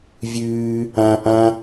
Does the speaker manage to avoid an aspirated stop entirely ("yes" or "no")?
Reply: yes